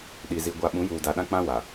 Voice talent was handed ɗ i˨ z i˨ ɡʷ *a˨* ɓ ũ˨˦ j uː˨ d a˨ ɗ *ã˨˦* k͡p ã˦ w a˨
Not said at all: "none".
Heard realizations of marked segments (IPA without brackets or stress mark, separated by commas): a˨, ã˦